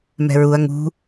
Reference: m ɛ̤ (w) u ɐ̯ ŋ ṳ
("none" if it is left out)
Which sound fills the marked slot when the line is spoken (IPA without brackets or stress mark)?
ɹ